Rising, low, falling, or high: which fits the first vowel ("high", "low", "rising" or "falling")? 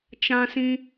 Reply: high